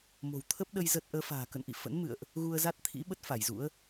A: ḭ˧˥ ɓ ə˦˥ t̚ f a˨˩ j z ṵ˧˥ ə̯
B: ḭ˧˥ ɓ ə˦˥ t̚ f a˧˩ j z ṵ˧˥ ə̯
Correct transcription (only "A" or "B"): B